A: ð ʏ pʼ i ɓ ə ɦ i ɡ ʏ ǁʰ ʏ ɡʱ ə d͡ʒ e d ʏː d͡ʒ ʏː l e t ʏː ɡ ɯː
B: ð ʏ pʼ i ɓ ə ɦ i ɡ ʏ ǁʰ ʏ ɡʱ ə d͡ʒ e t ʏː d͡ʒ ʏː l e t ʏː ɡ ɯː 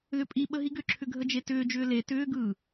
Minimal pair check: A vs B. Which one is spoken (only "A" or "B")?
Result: B